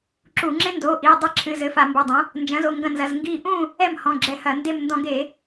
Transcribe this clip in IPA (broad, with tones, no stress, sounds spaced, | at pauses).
ǁ u˧˩˧ ŋ͡ǁ ẽ˦˥ n d oː˩˧˩ ʔ iː˩˧˩ dˤ ɘ˥˨ ǁʰ ɨ˩˧˩ z ɘ˩˧˩ f a˧˩˧ m b ɘ˩˧˩ dˤ ɐ̃˩˥ | n d͡ʒ ɐ̃˩˥ z o˩˧˩ ŋ ɡ ɐ̃˧˩ n z ɐ˩˧˩ z ŋ ɡ iː˧˩ ʔ ũ˥˨ | ɛ˥˨ m h ɔ̃˩˧˩ ɡ͡ǁ ɛ˧˩ h ɐ˧˩˧ n d e˧˩ m n d ɔ̃˧˩˧ ɡ e˧˩˧